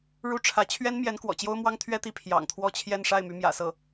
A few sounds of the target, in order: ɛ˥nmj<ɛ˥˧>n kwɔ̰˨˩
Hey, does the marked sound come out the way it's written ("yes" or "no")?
no